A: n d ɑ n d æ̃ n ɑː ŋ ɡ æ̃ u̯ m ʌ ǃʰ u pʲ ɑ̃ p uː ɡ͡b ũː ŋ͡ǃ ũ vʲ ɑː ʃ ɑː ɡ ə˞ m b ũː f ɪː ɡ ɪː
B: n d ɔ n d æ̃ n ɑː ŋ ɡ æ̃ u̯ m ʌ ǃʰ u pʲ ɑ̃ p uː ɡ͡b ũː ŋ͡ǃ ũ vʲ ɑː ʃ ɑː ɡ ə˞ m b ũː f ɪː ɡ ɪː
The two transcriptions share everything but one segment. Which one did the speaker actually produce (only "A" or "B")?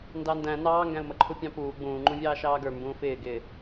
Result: A